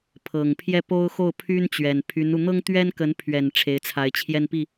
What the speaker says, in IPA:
pʰ ɤ˨˩ ŋ pʰ j ɛ˥˩ p o˥ ʊ̯ x o˥˩ ʊ̯ pʰ y˥ n t͡ɕ ɥ ɛ˨˩ n pʰ y˧˥ n u˧ n̪ ɤ˥ ŋ t̪ ɥ ɛ˥ n k ə˧˥ n pʰ ɥ ɛ˨˩ n ʈ͡ʂʰ e˧˥ ɪ̯ t͡sʰ a˧˥ ɪ̯ t͡ɕʰ j ɛ˥˧ n p i˥˩

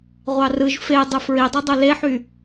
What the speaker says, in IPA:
ʁʷ ɑ r ɯ ʒ f e dˤ ɯ f ɹ i dˤ ɯ dˤ o l e ħ y

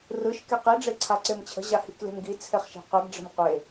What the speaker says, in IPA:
r ɯ ʃ k e q i ɖ͡ʐ e ǀʰ a ǀ e m t͡ɕʰ ə̤ ʑ a h i k l e̤ m ɡ i t͡sʰ e χ ʃ e̤ q ɯ ɡ ɖ͡ʐ ə̤ m qʷ e

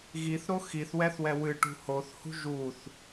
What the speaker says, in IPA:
ɣ i θ ɾ o x i θ w ɛ θ w ɛ w ɨ ʈ ṳ h o θ h ṳ ʒ u θ

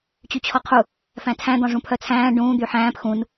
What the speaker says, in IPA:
t͡ɕ y t͡ɕʰ ɔ qʰ u | f æ̃ tʰ æ̃ d̪ ɔ̃ ʐ ũ pʰ œ t͡sʰ æ̃ː ɖ ũː d̪ y ħ æ̃ː p x ũ n

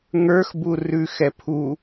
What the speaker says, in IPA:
ŋ ə˞ x b u r ʉ x ɛ pʰ u

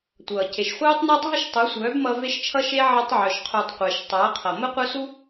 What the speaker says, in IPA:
tʷ ʌː˨ c e˨ ʃ χʷ œː˦ tˤ n ʌː˦ tˤ ɦ ə˦ ʃ tˤ u˨˦ sʷ œː˨˦ b m ʌ˧ v e˧ ʃ t͡ʃʰ ʌ˧ ʃ e˧ ʕ ʌ˧ tˤ ʕ œ˨ ʃ qʰ u˨ tˤ qʷ ɪː˨ ʃ tˤ ʌː˨˦ qʰ ʌ˨ m ə˦ qʷ œ˦ s u˦

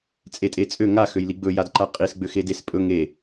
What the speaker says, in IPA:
t͡sʼ e tʼ e t͡sʼ ø ŋ a x ø j l i ɡ͡b ɵ j a d ǃ a qʼ i s ɡ͡b ø x e d e s pʼ ɵ ŋ e

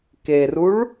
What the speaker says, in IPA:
k e r u ɭ

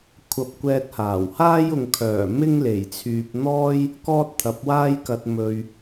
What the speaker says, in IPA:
kʷʰ ɐ˧ p̚ kʷ ɛː˧ t̚ h aː˨˩ w h aː˥ j ʊ˨ ŋ kʰ œː˨˩ m ɪ˥ ŋ l e˨˩ j t͡sʰ yː˨ p̚ n̪ ɔː˥ j | k ɔː˥ t̚ t̪ʰ ɐ˨˥ p̚ w aː˥ j k ɐ˧ t̚ m ɵ˨ ɥ

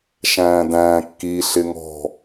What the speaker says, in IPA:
ʃ æ̃ː d æ̃ː kː i ɬ ɪ ŋ ɔ̤

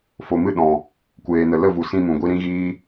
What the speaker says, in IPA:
f o˨ m ɨ˦˨ ɗ ɔ̃˨ | kʷ eː˨ n ə˨ l ə˦˨ v u˨ s ĩ˧ m ũ˨ ɡʷ i˧ ɾ ĩ˦ ɣ iː˦

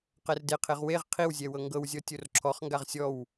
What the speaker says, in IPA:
q ɛ r d e qʰ e ʁ w e ʁ qʰ i w zʲ ɛ w ɤ ŋ ɡ ɤ w zʲ ɔ tʲ o r ǁʰ ɔ χ ŋ ɡ a ʁ sʲ ɔ w

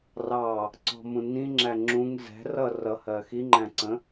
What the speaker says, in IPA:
r ɑ | ǀ ɔ̤ m ũ n ĩ ŋ͡ǁ æ ŋ͡ǁ ũ ŋ z ɛ̤ r ʌ r ʌ h ɜ x i ŋ͡ǃ æ̃ ǀ ə̃

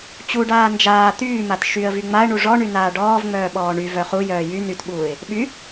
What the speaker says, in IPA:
t͡ɕ u ɖ aː n d͡ʒ aː t̪ yː m a t ʃ y ə̯ v y ŋ͡m a ə̯ ɳ u ʐ ɔ ɳ y n aː ɖ ɔː v ŋ͡m œː ɓ ɔː ɳ y v œ χ u j œː j y n y t ɓ uː ɪ̯ | ɓ y

